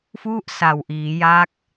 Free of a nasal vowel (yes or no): yes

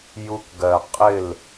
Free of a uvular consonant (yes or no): no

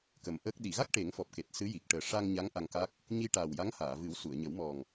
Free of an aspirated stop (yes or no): yes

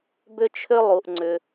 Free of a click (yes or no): no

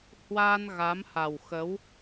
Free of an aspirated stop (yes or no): yes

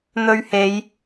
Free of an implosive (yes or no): yes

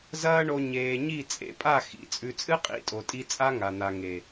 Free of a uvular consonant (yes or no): no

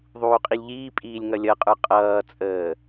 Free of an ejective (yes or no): no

